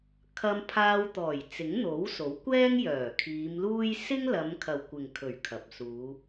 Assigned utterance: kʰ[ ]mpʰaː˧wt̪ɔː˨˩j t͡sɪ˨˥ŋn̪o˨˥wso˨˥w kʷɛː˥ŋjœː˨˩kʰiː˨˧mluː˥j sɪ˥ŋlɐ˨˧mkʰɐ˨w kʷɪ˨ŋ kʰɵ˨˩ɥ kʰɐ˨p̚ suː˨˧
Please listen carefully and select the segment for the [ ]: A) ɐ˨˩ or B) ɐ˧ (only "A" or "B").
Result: B